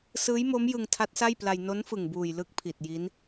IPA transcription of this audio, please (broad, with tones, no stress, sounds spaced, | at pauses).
s ɯː˦˥ j m o˦˥ m j ɯ˧ ŋ tʰ a˦˥ t̚ s a˥˩ j p l a˧ j n o˦˥ n f ɯ˨˩ ŋ b uː˨˩ j l ɯ˥˩ k̚ pʰ i˨˩ t̚ j i˦˥ n